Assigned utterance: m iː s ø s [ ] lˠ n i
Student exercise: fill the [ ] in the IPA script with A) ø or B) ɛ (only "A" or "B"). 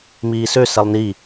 B